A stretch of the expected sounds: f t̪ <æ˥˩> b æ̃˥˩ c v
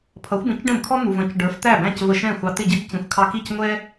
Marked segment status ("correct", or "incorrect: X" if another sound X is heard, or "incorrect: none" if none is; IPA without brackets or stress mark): correct